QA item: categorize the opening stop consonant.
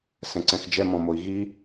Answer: click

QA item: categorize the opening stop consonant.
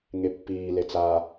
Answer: plain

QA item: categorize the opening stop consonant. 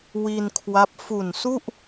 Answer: aspirated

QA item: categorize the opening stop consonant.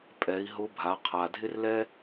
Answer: ejective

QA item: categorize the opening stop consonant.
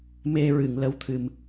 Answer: aspirated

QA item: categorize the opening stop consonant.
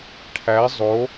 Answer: aspirated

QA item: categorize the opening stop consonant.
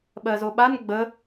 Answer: implosive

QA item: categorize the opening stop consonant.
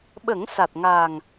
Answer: implosive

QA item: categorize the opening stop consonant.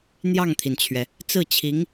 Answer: aspirated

